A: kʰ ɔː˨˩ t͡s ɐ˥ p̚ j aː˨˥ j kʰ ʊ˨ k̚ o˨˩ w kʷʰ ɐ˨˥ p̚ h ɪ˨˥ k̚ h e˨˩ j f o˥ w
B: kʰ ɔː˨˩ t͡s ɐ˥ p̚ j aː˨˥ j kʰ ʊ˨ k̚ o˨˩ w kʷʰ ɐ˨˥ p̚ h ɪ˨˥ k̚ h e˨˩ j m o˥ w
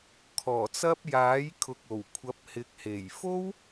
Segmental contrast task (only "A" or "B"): A